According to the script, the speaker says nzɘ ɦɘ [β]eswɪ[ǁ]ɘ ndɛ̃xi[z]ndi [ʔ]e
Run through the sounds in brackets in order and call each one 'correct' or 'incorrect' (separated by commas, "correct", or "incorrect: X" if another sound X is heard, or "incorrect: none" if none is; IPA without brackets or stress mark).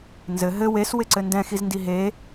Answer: incorrect: w, incorrect: ǀ, correct, incorrect: ɦ